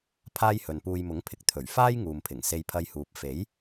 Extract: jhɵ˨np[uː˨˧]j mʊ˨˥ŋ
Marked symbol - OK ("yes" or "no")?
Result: no